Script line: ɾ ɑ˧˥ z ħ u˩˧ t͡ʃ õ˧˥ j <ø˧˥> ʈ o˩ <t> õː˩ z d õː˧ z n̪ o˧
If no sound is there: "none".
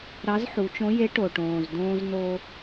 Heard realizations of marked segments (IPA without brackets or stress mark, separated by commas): e˧˥, ʈ